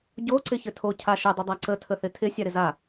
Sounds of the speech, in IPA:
ɟ o ǀ ɪ ç ɘ tʰ o cʰ a ʃ ə dˤ ɪ dˤ a ǀ ə tʰ ə θ ɪ tʰ ɪ sʲ a ɾ ɪ z a

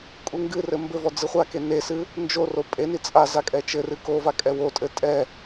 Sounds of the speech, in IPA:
kʼ u ŋ ɡ ɨ r ɘ m b ɘ v ɔ d͡z ɨ χʷ a k e n e s ɨ | n d͡ʒ o r o pʼ e n i t͡sʼ a z a kʼ ɛ t͡ʃ ɘ r ɨ k o v a kʼ ɛ w o tʼ ɘ tʼ ɛ

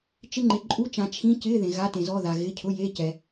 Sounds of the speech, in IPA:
t͡ʃ ɪ˧˥˧ ŋ͡ǃ ɪ˨ ǃʼ u˧˥˧ t͡ʃ ã˨ t͡ʃʰ ĩ˧˥˧ c ɪ˧˥˧ ð ẽ˨ ɣ a˧˥˧ t ẽ˨ z ɔ˧˥˧ ð a˨ ɣ ɪ˧˥˧ cʰ ʊ˧˥˧ j e˧˥˧ c ɛ˨

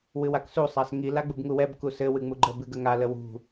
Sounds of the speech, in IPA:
w ɨ w a k s u sˤ a s ŋ i l a ɡ͡b u b ŋ u w ɛ b k u s ɘ w ɨ ŋ͡m u ɡ͡ǃ ə b ɨ ɡ ə ŋ a l ə w ṳ

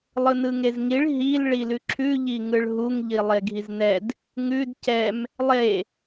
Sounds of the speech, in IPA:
lˠ ɯ n ɯ ŋ e z ŋ i ɭ ɦ i l ɭ i l ʉ ǁʰ ʉ ʎ i ŋ ɯ ɭ ɦ u ŋ ʎ i lˠ e ɡʱ i z n ɛ d | ŋ ʉ d c ɛ m | lˠ e

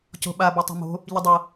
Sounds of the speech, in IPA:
c o̤ ɓ a b o tˤ o̤ m o̤ | ʎ ɪ dˤ ɤ

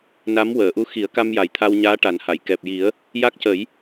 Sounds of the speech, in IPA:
n a˧˥ m w əː˨˩˨ ʔ u˧˥ x i˨˩˦ ə̯ k a˧ m j a˨˩ j t̪ʰ a˧ w ɲ aː˧˥ ʈ a˨˩˦ n h a˨˩˨ j k ɛ˨˩ p̚ j i˨˩˦ ə̯ | j a˦˥ k̚ c ə˨˩˦ j

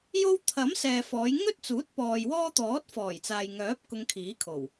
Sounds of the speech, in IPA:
j o˥ w t̪ʰ ɐ˨˥ m s ɛː˨ f ɔː˨˧ j ŋ ɵ˥ t̚ t͡s uː˨˥ t̚ p ɔː˨ j w ɔː˥ t̪ ɔː˨˥ t̚ f ɔː˨˩ j t͡s aː˨ j ŋ œː˨˥ p̚ k ʊ˧ ŋ kʰ iː˨˥ kʰ o˨˩ w

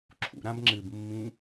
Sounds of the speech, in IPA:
ǁʰ ṵ ɾ ã b ŋ͡ǁ ɨ b mː ĩ

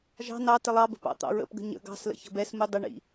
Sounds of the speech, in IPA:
ʒ ɑ̤ n ɑ t ɪ lˠ ɑ b ə̤ p ɑ̰ t̪ ɑ̰ ɹ ə̰ p ɡ ə̤ ɲ ə̰ ɡ ɑ̤ s l ə̰ ç ə̤ b ɛ s m u dˤ ə ɳ ḭ

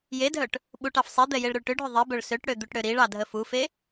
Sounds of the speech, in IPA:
j e dʱ œ ʈ | ɓ u ʈ ɑ f sˤ i d̪ ɛ j e ɭ ɾ ø ɭ ʈ ʏ ɖʱ ʏ ðˤ i b œ ɭ s ø ʈ ɽ ø d̪ u ʈ ɽ ø ɾ i ɭ ɑ dʱ ə f u f e

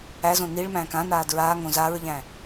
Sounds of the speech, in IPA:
æ z õ n i ɭ m æ̃ː k ã n aː d ɹ aː ŋ õ z a ɹ ʎ æ̃

